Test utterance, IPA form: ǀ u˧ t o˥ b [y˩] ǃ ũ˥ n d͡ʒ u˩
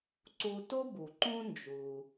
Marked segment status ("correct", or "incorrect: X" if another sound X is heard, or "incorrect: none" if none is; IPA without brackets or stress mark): incorrect: u˩